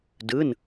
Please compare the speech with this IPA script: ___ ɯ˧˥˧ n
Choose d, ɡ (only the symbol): d